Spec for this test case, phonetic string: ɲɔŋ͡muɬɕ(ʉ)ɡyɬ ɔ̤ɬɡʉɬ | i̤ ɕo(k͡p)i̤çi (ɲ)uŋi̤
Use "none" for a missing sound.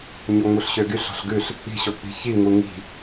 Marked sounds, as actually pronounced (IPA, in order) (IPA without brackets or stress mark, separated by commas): ø, k͡p, ŋ